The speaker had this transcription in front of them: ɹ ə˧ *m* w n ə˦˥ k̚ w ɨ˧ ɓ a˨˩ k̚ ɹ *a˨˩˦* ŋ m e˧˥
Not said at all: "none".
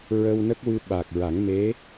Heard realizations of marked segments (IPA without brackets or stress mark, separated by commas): none, a˨˩˦